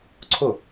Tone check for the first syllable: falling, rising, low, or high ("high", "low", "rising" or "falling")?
falling